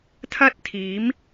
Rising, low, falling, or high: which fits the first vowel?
high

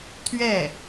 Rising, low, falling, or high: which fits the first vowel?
falling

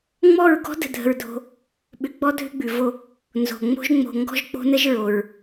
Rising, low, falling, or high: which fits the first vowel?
falling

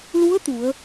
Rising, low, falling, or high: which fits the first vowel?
rising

